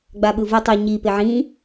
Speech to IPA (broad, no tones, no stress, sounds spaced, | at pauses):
ɡ͡b a ɓ ɯ v ɯ tˤ ʉ ɲ i p e ʕ ĩ